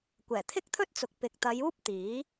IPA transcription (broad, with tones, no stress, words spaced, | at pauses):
kʷɛː˨˩t̪ʰɪ˥k̚t̪ʰɵ˥t̚t͡sʊ˨k̚ pɪ˨k̚t̪ɐ˨˧juː˥p̚ t̪iː˨˥